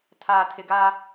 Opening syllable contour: low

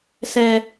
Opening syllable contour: high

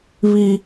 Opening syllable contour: high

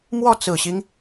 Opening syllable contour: falling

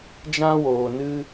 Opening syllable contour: high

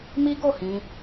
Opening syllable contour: high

